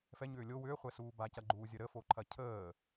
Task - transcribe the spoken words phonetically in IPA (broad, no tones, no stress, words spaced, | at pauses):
fɛɲʏː lʲo wʏːχʷɛsuː bacɐɡ͡ǃuːzʲə ɾəfoǃʰɐ cʰəː